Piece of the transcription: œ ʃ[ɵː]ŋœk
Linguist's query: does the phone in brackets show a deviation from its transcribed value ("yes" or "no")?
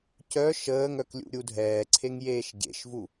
yes